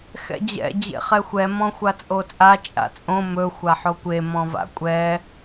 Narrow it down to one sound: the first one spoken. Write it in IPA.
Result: x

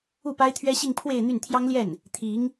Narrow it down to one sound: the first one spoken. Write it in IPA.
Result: u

